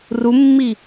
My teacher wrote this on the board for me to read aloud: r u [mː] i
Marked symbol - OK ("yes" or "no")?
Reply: yes